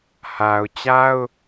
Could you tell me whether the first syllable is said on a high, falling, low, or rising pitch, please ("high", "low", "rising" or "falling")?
low